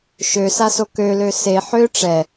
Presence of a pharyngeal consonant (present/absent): present